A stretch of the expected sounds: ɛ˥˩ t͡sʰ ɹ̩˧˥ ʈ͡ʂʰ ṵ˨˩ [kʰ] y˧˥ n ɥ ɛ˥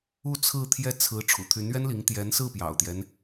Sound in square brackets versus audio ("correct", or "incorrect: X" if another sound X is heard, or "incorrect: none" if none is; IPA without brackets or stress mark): incorrect: t̪ʰ